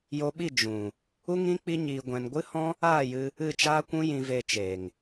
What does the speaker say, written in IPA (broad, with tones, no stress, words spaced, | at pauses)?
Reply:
jo˧ɓi˦˨ d͡ʒũ˨ | u˦ŋĩ˦ k͡pi˦ɲiː˧ɡʷɛ̃˧n ɡʷɨ˦hɔ̃˦ | aː˦˨jɨ˧ | ɨ˦˨t͡ʃaː˦kʷũ˦ jĩ˧ve˧ t͡ʃeː˨ŋ